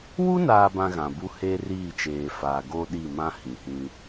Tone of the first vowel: high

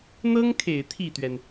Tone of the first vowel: high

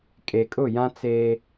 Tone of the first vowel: low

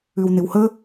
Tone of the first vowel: low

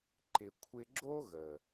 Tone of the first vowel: low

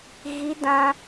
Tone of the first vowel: high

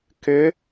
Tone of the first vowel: rising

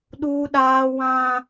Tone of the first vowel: high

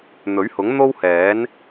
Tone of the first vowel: rising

